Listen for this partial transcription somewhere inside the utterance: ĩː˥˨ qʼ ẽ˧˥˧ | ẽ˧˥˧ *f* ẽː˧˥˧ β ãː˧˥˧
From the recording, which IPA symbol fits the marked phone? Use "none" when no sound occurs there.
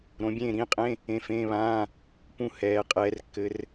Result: f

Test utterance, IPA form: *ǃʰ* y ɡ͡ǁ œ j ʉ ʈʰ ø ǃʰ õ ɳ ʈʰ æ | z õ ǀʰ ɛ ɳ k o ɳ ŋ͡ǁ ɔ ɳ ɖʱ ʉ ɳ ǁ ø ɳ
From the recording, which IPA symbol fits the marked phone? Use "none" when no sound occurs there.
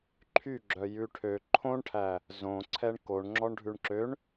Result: ǃʰ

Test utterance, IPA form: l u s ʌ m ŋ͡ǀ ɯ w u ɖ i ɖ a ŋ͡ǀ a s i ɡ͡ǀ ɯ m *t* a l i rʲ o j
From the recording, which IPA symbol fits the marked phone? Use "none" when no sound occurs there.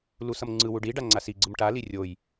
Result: ʈ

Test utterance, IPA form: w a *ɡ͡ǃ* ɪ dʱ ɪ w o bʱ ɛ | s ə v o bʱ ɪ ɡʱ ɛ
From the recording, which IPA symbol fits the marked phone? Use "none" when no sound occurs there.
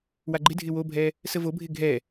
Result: ɡ͡ǃ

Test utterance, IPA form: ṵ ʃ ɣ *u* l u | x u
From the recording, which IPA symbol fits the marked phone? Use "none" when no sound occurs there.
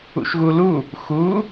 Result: u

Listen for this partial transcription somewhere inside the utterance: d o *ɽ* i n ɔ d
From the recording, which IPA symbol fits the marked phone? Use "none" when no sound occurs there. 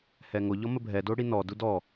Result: ɽ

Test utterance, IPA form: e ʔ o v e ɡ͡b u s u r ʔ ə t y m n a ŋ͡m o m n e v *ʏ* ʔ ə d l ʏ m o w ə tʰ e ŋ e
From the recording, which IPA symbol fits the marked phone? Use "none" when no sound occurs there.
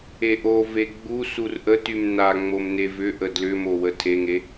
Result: ʏ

